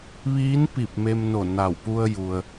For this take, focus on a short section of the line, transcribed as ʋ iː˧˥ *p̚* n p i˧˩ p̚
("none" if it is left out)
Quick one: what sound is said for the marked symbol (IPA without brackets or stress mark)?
none